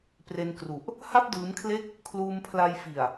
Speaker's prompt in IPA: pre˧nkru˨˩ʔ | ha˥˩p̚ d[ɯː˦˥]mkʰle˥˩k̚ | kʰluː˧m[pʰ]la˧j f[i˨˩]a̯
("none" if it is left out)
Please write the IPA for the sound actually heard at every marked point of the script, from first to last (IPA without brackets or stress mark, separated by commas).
ɯː˦˥, pʰ, i˨˩